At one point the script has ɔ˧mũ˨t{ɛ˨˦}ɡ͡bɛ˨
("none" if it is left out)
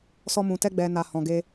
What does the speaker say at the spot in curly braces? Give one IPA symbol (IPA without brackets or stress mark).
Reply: ɛ˧